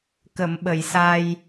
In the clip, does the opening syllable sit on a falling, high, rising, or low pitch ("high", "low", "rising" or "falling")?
low